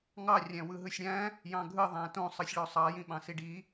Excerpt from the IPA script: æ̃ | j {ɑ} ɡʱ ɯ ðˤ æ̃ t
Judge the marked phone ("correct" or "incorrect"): incorrect